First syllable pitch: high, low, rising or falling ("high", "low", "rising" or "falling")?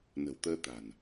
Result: low